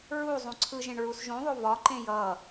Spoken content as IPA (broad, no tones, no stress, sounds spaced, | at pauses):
ɹ u zˤ ũ ǀʰ ɯ ʒ ẽ ɳ ɹ u s ʒ ũ ðˤ o v ɒ ǃ ẽ j ʌ